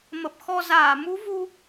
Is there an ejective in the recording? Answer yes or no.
no